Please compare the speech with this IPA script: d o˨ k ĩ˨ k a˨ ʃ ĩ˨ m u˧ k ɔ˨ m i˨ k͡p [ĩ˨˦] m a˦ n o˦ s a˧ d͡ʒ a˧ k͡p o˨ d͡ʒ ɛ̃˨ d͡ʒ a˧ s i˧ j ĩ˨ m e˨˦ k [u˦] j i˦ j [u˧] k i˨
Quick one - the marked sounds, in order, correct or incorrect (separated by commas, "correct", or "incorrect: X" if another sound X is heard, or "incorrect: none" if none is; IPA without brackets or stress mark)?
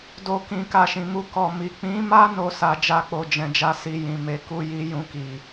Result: correct, correct, incorrect: ũ˧